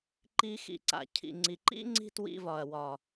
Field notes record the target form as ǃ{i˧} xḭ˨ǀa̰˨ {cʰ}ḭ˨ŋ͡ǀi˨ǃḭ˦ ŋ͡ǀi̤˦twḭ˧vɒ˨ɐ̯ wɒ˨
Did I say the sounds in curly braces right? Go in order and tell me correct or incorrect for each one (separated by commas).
correct, correct